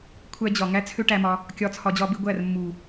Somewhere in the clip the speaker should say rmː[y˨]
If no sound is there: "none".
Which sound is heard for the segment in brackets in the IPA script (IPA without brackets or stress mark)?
u˨